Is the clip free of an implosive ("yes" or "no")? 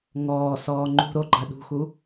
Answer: no